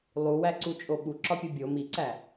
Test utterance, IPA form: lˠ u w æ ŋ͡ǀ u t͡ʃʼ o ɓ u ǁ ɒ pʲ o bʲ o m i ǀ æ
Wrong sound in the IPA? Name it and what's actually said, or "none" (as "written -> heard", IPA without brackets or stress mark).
ŋ͡ǀ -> ǀ